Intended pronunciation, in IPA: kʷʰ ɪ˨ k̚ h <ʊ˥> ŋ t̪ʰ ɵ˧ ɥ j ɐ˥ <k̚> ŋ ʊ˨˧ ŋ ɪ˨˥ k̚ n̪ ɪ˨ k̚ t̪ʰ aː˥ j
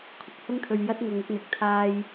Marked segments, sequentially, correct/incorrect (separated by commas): correct, incorrect